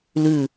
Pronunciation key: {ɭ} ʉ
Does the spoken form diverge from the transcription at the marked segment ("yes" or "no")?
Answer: yes